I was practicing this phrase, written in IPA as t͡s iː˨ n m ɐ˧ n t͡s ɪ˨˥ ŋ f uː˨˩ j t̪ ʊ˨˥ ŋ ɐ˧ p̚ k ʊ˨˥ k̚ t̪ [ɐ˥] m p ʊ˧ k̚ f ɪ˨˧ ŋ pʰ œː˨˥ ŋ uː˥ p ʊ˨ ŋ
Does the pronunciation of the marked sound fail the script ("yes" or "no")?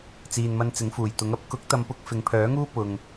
yes